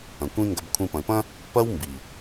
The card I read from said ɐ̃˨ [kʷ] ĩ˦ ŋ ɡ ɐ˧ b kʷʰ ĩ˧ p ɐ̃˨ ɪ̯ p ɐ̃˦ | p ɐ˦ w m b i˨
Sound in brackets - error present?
no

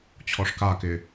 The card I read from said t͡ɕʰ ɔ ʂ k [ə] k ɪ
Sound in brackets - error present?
yes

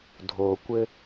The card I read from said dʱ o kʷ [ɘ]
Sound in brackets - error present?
no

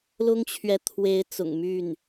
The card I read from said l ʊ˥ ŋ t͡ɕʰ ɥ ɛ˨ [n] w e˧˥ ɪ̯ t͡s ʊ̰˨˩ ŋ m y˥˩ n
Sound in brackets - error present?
yes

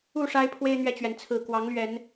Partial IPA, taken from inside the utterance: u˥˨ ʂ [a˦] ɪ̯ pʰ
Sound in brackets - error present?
no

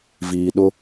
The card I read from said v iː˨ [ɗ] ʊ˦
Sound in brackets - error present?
no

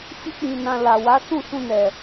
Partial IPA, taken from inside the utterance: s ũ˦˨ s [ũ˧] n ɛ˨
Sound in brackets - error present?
no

